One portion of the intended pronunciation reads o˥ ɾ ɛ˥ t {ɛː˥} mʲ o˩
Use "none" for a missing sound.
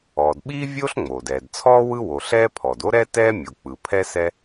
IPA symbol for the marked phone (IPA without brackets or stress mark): ɛː˥